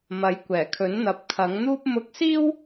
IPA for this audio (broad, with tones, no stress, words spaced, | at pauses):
mɐ˨˥jkʷɛː˨˩kʰɵ˨˥nn̪ɐ˨˥p̚ kʰɐ˨˥ŋn̪uː˥p̚ mʊ˧k̚siː˥w